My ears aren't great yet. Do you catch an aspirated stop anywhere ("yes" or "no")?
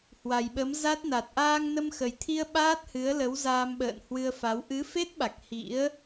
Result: yes